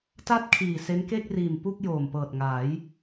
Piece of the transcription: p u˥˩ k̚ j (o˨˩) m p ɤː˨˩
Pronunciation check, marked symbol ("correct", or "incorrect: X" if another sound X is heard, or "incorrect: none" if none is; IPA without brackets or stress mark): incorrect: oː˨˩